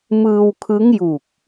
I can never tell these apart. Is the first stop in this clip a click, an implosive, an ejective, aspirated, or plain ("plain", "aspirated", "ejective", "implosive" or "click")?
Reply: aspirated